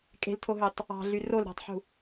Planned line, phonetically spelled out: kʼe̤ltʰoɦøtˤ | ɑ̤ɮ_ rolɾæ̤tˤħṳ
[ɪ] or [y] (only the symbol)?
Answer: y